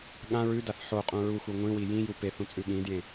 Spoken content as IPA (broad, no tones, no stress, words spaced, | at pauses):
ɠã ɹʉdaθ ħoqʼũ ɹuxu ŋʷĩwi jĩju peθũt͡sʼʉ ɠĩdjẽ